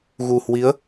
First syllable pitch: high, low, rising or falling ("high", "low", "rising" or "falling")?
low